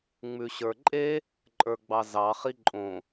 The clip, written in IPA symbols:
ŋ͡m ʉ ɕ ə˞ ǃʼ e | ǃʼ ə˞ ɡ͡b ɑ z ɑ χ i ǃʼ õ

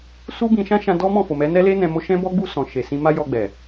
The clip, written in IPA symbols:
s u˦ b ĩ˧ ʃ ã˦ ʃ ã˧ d ɔ˦ m ɔ̃˦˨ f o˨ m ɛ˨˦ n ɛ˦ l e˦ n ɛ̃˧ m o˧ ʃ ɛ̃˦ b ɔ˦ ɡ͡b u˦˨ s ɔ̃˨ ʃ e˨ s ĩ˧ m a˦ j ɔ˧ ɡ͡b ɛ˨

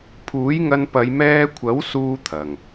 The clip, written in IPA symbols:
pʰ uː˨˥ j ŋ ɐ˧ n p ɐ˨˧ j m ɛː˧ kʷʰ ɐ˨˥ w s uː˥ t̪ʰ ɐ˨˩ ŋ

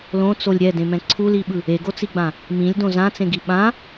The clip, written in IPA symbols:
l õ t͡s o lʲ ɾʲ ɛ d ẽ m ɛ̃ ǀʰ u l i ɓ ɯ | e ɡ o t͡s i ɡ͡b ã | m ĩ lʲ d õ z ã t͡s ẽ ɡ i ɓ ã

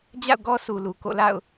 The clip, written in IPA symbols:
d͡ʑ a̰˦˨ ʊ̯ ɡ ɔ˦ sʰ u˨ l u˨ k o̰˦˨ l a̰˦˨ ʊ̯

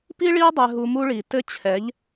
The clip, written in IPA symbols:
p i˦ ɭ i˦ ə̯ dˤ ɛ˧ ɦ u˧ m u˦ ɭ i˨ t ɘ˦ t͡ɕʰ ɛ˨˦ ʎ

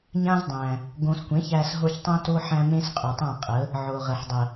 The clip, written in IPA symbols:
ɲ ã˦ z dˤ æ̃˨ | ɡ õ˧ s kʷ ẽ˨˦ ç æ˧ s ɦ o˧ ç tˤ õ˦ t o˦ ħ æ̃˧ m ẽ˦ s qʼ u˨ tˤ ã˦˨ qʼ ə˨˦ | ʕ o˨ ʁ ə˨ ħ dˤ ə˨

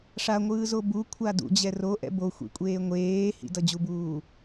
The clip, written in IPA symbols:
ʂ a ŋʷ ɯː z o b u kʷʰ a d ṵ d͡ʑ ɛ r o ʔ ɛ̰ b o xʷ ḭ kʷʼ eː ŋʷ eː h ḭ d ʌ d͡ʑ u b uː

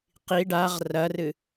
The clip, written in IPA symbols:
q i ɖ a ʁ r ɐ r ɨ

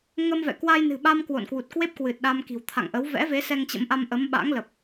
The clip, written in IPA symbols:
ŋ ə˧ m v ɛ̰˧˨ k w a˧ j n ɨ̤˨˩ ɓ a˧ m k w o̰˧˨ n k w u˨˩ t̚ k w e˦˥ p̚ k w ɨ˨˩ t̚ ɗ a˧ m k i̤˨˩ w t̪ʰ a̰˧˨ ŋ ʔ ə˨˦ w v ɛ̰˧˥ v e˨˦ s ɛ˧ ŋ t͡ɕ ə̰˧˥ m ʔ a˧ m ʔ ə˨˦ m ɓ a̰˧˥ ŋ l ə˨˩ p̚

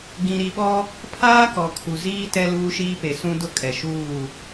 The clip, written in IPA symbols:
ɡ ĩ˨ ɾ i˨ ɓ ɔ˦ | pʰ aː˦ k ɔ˨ kʰ u˨ z iː˦ t ɛ˦ l uː˦ ʃ iː˦ p e˨ s ũ˦ d ʊ˦ kʼ ɛ˨ ʃ uː˦˨

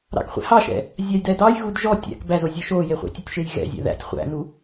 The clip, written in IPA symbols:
ɾ ɑ̰ k χʷ ɛ̰ h ɑ ʃ ɛ̰ | zʲ a j d ɛ d ɑ j ɣ u d ʒ ɔ tʲ æ̰ k b æ z o zʲ ɔ ʃ o j e χʷ æ̰ tʲ o tʲ ʃ e j ɣ ɛ̰ zʲ æ̰ ð æ̰ tʲ χʷ æ̰ n u

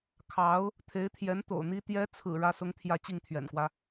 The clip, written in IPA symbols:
kʰ ɑ˧˥ ʊ̯ | t̪ʰ e˧˥ ɪ̯ t̪ʰ j ɛ˧˥ n t̪ o̰˨˩ ʊ̯ n̪ i˥ t̪ j ɛ˧˥ t͡sʰ ɹ̩˨˩ ɻ ä˥ s ʊ˥ ŋ t̪ʰ j ä˥ t͡ɕ i˥˩ ŋ t̪ʰ ɥ ɛ̰˨˩ n k w ä˦

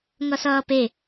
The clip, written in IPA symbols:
ŋ ʌ s ʌː p e

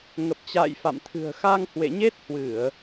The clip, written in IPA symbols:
ŋ ə˨˩ p̚ t͡ɕ a̰ː˧˨ j f a̰˧˨ m t̪ʰ ɨ̤˨˩ ə̯ x a˧ ŋ h w ḛ˧˨ ɲ e˦˥ t̚ h w ɨ˧˩˨ ə̯

